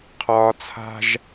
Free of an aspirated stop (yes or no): no